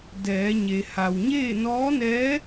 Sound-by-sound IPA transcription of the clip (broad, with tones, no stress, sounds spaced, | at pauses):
d ɛː˩˧ ɲ e˩ h a˩ w ɲ eː˥˨ n ɔː˧˥ n ɛː˧˥